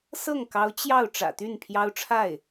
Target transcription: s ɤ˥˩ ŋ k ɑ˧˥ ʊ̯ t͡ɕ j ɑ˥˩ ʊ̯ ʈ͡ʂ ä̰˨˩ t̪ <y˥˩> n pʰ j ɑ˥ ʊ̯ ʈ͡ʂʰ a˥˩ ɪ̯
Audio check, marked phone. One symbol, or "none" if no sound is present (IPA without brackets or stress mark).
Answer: y˥˩